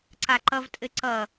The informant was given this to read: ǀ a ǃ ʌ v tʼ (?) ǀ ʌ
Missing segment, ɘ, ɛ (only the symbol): ɘ